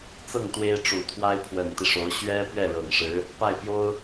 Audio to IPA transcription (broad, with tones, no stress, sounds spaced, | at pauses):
t͡s ɤ˥˩ ŋ t̪ w e˥ ɪ̯ ʈ͡ʂ u˨˩ t̪ʰ w a˥ ɪ̯ pʰ w ə˨˩ n t̪ i˦ ʂ o˧˥ ʊ̯ ɕ ɥ ɛ˥ p ɥ ɛ˥˩ ɻ ɤ˨˩ ŋ ʂ ɻ̩˧˥ | p a˥˩ ɪ̯ p j o˥ ʊ̯